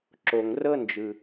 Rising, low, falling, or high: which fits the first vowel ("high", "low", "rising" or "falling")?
low